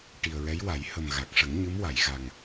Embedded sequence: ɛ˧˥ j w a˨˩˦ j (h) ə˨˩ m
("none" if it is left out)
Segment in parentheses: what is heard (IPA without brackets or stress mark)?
h